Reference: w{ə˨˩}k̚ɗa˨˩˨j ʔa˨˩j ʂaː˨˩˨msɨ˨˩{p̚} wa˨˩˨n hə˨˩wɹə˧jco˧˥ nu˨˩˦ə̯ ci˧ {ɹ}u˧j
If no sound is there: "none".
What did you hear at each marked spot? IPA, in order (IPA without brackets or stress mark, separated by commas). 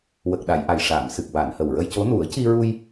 ə˨˩, k̚, ɹ